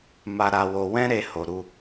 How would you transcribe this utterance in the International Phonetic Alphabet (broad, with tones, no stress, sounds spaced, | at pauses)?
m a˧ ɾ a˧ w o˧ w ɛ̃˦ ɾ e˧ h o˨ ɾ u˧